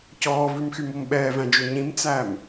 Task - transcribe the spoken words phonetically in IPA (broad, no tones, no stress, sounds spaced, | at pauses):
c ɔː v ʉ m x y m o m ɓ ɛː v æ̃ d͡ʒ ɵ ɲ ĩ m t͡s æ m